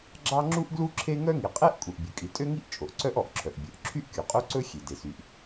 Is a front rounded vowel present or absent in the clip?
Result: present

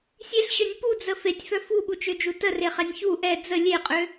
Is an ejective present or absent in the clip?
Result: present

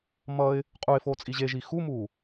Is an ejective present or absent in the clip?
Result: present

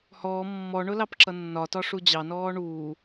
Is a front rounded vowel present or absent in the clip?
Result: absent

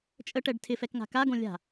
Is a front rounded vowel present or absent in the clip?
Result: absent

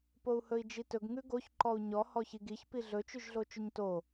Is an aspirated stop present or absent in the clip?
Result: absent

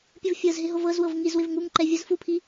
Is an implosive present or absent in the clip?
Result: absent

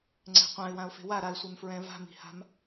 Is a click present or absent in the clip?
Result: present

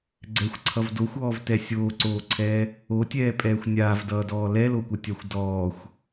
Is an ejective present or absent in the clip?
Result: present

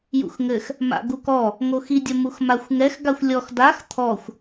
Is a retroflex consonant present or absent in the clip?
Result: absent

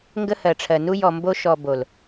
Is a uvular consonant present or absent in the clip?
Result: absent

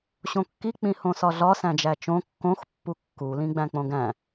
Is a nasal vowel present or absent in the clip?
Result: present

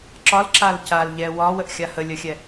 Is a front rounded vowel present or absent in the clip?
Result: absent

